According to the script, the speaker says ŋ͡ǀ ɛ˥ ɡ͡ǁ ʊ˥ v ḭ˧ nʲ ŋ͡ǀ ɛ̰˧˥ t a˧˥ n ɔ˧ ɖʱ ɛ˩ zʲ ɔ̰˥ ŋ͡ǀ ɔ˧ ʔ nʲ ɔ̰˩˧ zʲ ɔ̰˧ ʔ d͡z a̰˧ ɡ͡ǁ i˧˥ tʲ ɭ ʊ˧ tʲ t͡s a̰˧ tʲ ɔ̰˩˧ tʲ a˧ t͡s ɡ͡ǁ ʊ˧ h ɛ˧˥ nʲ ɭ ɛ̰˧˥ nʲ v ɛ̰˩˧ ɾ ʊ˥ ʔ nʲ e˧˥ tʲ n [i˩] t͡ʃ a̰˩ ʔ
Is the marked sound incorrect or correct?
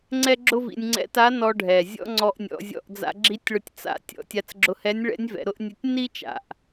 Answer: incorrect